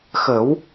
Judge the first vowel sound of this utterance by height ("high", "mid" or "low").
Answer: mid